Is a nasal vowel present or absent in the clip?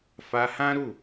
present